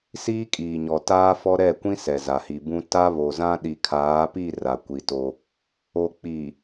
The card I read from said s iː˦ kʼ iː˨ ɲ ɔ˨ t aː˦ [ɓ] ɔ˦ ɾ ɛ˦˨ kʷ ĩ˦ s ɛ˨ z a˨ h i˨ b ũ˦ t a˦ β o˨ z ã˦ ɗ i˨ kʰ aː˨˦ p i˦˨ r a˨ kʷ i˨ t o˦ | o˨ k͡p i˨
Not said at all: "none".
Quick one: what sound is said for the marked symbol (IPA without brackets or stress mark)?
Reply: f